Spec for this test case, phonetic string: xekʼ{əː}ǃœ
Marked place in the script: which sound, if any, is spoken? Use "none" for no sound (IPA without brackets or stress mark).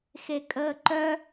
əː